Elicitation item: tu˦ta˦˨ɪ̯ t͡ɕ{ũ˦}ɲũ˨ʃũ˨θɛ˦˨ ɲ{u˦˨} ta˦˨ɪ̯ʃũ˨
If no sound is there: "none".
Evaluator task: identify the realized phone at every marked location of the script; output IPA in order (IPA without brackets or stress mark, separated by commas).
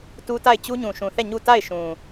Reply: u˦, u˦˨